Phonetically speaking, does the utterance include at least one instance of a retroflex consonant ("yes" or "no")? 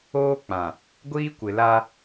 no